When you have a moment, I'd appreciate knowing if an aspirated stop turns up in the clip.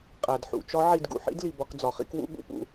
no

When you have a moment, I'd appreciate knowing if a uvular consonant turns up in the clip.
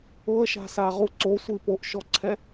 yes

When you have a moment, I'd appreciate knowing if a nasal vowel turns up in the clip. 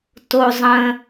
yes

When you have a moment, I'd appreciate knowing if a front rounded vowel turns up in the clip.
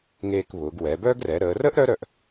yes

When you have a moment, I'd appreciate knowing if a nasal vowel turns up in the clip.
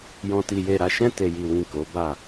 yes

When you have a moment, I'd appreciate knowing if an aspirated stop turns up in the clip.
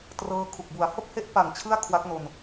yes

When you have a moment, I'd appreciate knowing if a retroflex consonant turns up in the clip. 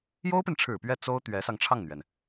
yes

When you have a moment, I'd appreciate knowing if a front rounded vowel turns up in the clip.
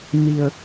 no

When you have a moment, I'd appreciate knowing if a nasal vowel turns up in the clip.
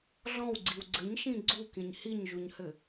yes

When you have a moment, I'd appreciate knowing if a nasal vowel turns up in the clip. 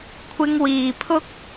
no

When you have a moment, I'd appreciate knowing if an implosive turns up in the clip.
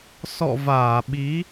yes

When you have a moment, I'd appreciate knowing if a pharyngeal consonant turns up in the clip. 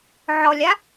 yes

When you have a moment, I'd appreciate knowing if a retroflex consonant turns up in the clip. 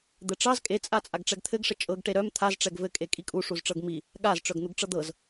yes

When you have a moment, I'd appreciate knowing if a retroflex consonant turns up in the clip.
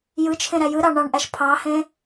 yes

